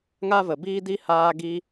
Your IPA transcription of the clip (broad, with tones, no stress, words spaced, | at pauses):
ŋa˦və˨biː˦ di˦ haː˧ɡi˧